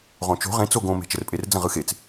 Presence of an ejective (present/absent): present